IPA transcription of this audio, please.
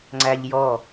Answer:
ŋ͡ǀ æ ʎ j ɔ

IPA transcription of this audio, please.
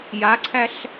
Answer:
j a ǀʰ æ ɬ

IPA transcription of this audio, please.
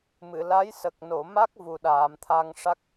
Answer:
m ɨ˨˩˨ l a˧˥ j s ə˨˩ k̚ n o˨˩˨ m a˦˥ k̚ v u˨˩ ɗ aː˨˩˨ m t̪ʰ a˧ ŋ ʂ a˦˥ k̚

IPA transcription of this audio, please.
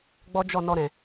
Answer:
ɡ͡b ɔ˦ d͡ʒ ɔ˦˨ n ɔ˧ ɾ ɛ̃˨

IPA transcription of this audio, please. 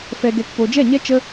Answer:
f ɛ˧ ɡ ɛ˧ k p o˨ d͡ʒ ɛ˦˨ ɲ ɛ˦ t͡ʃ ə˦

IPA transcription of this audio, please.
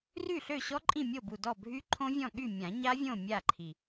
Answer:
r y˥˨ ɬ ø˥˨ ɕ ɔ˦˥ ǃʼ ĩ˥˨ mʲ o˥˨ b u˥˨ d ɔ˥˨ bʱ y˦˥ ǃʰ õ˦˥ vʲ ɔ̃˥˨ ɠ y˥˨ mʲ ã˨˩˦ ɲ a˦˥ vʲ õ˥˨ mʲ a˥˨ ǃʰ i˨˩

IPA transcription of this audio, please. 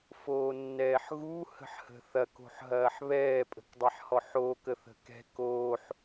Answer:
f oː nː ɛː ħ ɣ u h ə̤ ħ h ə̤ θ ɐ k o̤ ħ ɦ ɐː ħ β ɛː pʼ ə̤ k dˤ ɛ ħ h ɔ ħ oː k ə θ ə̤ k ɛ̤ k oː ħ

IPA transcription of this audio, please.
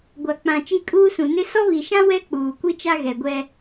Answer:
ɡʷ a˨ k͡p ã˨ t͡ʃ i˦˨ kʼ uː˦ s ũ˨ n ɪ˦ s ɔ˦ β i˨ ʃ ã˦ w ɛ˦ k͡p uː˨ kʷ i˦ t͡ʃ a˦ ɣ ɛ˨ ɡʷ ɛ˦

